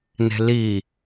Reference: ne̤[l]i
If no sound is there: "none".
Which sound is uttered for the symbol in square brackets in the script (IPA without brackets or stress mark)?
l